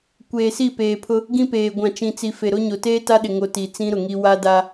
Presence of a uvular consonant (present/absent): absent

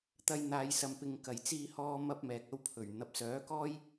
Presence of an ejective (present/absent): absent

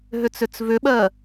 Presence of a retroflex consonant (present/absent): absent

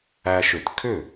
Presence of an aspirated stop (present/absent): present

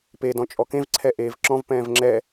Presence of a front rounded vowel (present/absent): absent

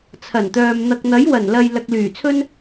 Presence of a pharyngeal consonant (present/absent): absent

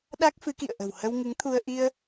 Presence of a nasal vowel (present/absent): absent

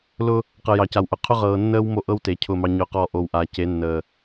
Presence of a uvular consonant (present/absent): present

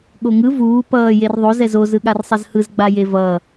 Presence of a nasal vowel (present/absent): absent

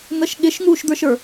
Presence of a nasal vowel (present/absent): absent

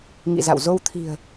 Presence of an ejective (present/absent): absent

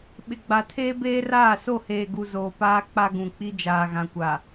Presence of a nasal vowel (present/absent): present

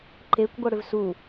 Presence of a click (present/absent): present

